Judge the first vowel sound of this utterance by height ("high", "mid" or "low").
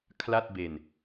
low